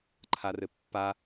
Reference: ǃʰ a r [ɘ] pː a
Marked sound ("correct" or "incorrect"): correct